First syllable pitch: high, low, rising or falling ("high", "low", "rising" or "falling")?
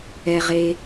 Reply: low